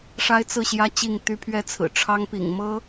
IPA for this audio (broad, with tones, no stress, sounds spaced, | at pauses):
ʂ a˥ ɪ̯ t͡s ɹ̩˥˩ ɕ j ä˥ t͡ɕ i˥˩ ŋ t̪ y˥ pʰ ɥ ɛ˥ t͡sʰ ɹ̩˨˩ ʈ͡ʂʰ ɑ˥ ŋ p ḭ˨˩ ŋ m ɤ˥